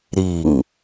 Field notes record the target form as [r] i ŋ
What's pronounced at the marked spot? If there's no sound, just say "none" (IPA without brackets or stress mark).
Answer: ɾ